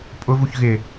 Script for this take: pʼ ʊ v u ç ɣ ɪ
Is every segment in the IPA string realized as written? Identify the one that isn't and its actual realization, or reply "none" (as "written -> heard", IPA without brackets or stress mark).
none